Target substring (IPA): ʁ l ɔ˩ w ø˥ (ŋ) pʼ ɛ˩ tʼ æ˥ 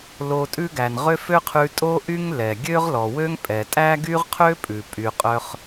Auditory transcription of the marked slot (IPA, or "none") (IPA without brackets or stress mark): ŋ